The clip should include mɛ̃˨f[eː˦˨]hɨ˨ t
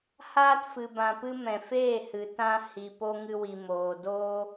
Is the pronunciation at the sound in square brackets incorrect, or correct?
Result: correct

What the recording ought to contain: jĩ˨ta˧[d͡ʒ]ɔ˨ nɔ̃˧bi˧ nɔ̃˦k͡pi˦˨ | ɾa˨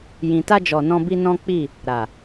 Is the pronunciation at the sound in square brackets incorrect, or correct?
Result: correct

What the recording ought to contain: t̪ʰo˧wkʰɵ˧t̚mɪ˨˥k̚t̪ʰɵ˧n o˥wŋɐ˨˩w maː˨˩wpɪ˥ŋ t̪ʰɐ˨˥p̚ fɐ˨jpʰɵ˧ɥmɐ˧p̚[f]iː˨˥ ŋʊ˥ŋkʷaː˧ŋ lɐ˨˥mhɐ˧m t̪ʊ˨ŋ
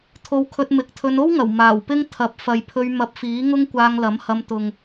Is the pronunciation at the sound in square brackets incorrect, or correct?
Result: correct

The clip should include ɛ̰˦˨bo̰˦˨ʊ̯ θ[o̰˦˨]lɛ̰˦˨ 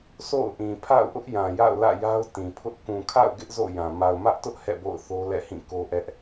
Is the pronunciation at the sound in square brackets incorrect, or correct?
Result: incorrect: o˦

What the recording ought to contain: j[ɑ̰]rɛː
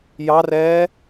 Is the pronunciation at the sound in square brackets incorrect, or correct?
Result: incorrect: ɑ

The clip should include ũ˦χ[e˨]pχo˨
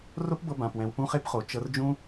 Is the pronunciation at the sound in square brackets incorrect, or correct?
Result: incorrect: e˦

